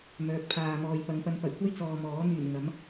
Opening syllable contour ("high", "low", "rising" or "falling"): rising